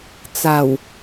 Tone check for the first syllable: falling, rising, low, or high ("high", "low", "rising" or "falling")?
low